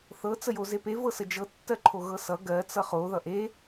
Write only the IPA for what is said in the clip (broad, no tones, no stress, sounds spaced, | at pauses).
θ ɤ t͡s ə j o z e p e v ɤ s ə d͡ʒ ɤ tː ɜ ǃʰ o ɣ ɤ s ʌ ɡ ɜ t͡s ʌ χ o ð ʌ ʔ e